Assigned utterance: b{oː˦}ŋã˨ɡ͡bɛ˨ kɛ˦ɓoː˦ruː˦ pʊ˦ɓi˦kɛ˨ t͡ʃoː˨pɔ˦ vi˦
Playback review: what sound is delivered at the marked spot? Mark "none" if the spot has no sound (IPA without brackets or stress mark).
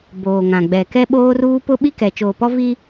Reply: oː˨